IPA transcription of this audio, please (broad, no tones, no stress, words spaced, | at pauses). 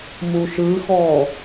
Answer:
muʃɯxɔ